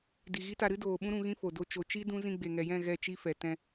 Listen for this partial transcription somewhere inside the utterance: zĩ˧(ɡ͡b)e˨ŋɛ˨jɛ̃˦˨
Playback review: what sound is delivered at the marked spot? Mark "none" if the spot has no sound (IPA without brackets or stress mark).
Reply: ɡ͡b